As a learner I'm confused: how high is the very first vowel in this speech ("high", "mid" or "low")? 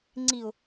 high